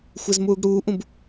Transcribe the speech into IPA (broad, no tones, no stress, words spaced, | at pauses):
xʷezmuːɡɽuːʔũb